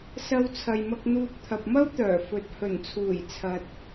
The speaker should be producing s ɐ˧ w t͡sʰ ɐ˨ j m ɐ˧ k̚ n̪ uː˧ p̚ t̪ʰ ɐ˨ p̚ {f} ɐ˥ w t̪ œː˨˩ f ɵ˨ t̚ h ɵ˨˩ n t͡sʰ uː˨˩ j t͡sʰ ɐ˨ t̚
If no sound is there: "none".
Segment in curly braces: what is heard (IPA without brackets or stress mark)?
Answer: m